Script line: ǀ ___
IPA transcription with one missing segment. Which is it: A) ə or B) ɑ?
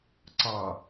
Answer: B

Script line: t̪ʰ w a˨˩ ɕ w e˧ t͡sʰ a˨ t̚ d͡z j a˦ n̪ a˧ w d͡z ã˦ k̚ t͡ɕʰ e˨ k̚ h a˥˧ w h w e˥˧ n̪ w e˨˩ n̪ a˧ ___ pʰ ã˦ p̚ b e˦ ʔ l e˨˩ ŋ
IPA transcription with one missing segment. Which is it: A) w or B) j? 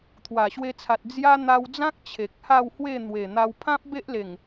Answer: A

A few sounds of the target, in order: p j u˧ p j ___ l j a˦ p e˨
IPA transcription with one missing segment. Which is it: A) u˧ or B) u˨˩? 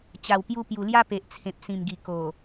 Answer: B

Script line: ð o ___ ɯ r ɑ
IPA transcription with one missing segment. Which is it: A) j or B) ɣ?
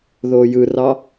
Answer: A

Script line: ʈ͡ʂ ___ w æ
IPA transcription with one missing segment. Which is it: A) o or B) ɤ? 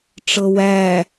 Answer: B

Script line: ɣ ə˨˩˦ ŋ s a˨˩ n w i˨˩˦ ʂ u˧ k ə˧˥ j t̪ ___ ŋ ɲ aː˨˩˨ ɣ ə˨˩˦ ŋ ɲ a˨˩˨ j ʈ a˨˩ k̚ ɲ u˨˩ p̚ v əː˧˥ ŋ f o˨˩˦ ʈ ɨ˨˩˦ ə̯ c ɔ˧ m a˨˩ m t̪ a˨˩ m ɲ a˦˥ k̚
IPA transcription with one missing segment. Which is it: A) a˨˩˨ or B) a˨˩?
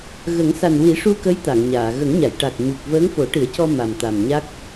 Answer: A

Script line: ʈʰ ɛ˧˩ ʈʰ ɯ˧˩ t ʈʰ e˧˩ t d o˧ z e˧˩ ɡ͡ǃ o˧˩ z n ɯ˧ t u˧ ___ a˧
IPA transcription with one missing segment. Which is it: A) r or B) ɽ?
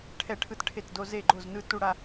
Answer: B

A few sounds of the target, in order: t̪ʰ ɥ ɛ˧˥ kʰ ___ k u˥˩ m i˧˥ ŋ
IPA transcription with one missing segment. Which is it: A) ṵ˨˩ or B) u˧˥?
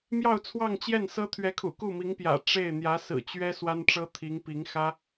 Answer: A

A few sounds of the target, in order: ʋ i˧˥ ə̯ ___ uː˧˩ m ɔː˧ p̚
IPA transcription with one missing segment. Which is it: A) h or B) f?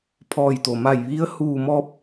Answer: A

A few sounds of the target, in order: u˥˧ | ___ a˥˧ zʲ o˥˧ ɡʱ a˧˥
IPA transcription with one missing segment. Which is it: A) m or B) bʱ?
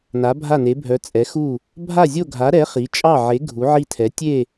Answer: B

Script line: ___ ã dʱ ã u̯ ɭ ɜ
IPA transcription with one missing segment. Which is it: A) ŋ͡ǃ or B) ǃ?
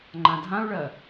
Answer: A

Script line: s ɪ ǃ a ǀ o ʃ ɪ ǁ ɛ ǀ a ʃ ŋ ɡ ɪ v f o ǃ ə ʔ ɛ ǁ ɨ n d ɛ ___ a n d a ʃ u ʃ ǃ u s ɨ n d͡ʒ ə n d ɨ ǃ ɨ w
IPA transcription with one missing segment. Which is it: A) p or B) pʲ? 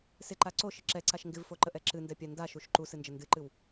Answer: B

